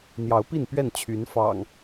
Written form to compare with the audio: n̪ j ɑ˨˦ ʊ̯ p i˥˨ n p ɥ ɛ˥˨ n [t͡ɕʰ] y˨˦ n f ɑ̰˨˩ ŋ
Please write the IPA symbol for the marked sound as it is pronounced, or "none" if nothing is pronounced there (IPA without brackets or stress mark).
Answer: t͡ɕʰ